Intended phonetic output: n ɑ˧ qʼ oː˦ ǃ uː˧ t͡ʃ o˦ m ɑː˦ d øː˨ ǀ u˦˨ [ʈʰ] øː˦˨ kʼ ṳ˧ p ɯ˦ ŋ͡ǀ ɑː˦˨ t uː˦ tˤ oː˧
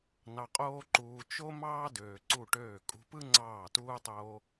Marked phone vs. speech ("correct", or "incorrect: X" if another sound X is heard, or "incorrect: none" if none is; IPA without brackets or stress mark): incorrect: ʈ